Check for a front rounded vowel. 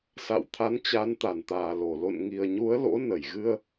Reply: absent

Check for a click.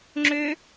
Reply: present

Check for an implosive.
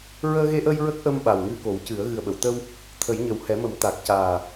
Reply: present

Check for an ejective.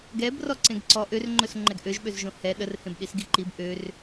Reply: absent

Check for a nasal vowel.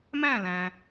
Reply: present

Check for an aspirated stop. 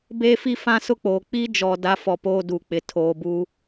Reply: present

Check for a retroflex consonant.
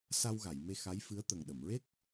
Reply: absent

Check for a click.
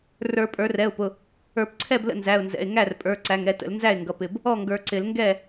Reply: present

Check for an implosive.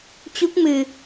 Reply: absent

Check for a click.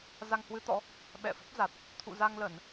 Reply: absent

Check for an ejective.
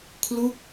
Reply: absent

